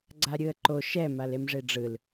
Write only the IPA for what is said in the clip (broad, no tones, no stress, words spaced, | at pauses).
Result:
ɡ͡ǀaɾʲɯə̯ǃo ʃɛ malemʐeɖ͡ʐɯl